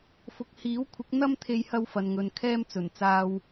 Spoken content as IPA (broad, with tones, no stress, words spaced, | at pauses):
fʊ˨k̚hiː˨˥wkʷʰɪ˨˥k̚ n̪ɐ˥mt̪ʰe˧jhɐ˧w fɐ˨nŋɵ˨n kʰɛː˥mt͡sɵ˨˩nt͡saː˧w